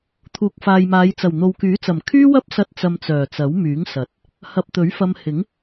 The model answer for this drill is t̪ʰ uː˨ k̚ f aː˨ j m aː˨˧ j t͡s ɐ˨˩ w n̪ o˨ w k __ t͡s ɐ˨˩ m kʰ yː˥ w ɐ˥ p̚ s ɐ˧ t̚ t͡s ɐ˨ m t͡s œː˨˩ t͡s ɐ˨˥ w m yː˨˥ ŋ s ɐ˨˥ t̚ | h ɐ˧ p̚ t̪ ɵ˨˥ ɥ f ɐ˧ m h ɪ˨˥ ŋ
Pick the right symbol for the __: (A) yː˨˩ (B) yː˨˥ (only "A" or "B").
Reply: B